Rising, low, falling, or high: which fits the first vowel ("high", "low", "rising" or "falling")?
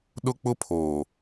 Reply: high